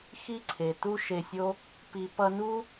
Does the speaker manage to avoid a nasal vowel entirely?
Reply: yes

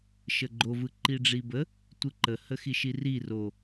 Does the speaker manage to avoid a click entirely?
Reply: no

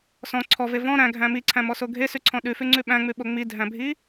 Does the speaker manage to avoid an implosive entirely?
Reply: no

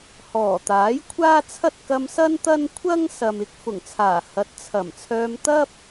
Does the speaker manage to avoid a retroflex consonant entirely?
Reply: yes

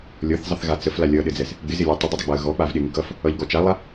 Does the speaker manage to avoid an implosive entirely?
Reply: no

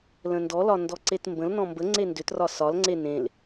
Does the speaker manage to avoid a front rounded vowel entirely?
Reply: no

